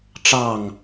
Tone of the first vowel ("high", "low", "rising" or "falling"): falling